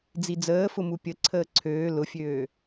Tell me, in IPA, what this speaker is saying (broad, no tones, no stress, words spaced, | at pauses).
d͡zid͡zəːfʊmu pʲə ǀʰəːǀʰøː lʊfʲøː